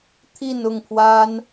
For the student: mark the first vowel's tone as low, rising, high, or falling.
falling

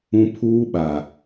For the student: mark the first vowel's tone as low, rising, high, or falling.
high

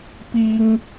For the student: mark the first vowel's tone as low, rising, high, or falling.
high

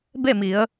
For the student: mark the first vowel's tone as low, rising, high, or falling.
falling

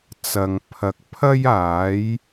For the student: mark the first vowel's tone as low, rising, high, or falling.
low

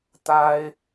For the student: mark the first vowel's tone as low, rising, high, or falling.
high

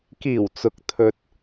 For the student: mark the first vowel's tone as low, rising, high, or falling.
low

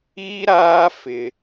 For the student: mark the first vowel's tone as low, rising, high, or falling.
high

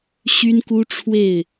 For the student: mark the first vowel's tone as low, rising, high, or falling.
high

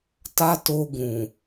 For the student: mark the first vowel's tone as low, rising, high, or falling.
high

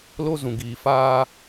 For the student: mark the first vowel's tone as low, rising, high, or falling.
high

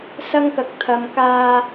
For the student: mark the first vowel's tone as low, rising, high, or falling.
high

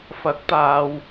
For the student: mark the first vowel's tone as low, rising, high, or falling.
rising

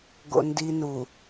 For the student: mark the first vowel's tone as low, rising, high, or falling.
low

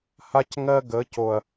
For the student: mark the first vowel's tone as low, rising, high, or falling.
high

